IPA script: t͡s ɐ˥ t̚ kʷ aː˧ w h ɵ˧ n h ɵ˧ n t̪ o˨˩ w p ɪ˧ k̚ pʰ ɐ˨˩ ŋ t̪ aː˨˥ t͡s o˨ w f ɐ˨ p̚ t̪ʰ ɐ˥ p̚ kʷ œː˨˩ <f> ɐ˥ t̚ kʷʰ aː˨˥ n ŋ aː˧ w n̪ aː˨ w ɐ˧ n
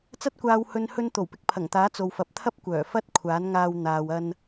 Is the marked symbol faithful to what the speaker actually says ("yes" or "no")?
yes